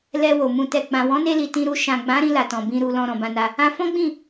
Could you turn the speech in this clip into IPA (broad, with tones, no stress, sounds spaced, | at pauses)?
l ɛ˨ w o˨ m ũ˨ t ɛ˨ ɡ͡b ã˨ w ɔ̃˨˦ n e˧ l i˨ t ĩ˧ ɾ u˧ ʃ ã˨ ɡ͡b ã˨˦ ɾ ĩ˧ l a˨ t ɔ̃˨ b ĩ˧ ɾ u˧ l ɔ̃˧ ɾ ɔ̃˨ b ã˧ n a˧ | ã˧ f ɔ̃˦ ɡ͡b ĩ˦˨